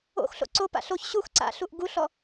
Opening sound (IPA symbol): o̰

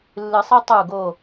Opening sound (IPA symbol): lː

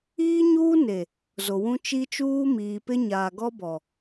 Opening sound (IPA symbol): iː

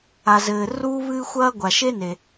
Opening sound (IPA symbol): a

